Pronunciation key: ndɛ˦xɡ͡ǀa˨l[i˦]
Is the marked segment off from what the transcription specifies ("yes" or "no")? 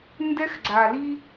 no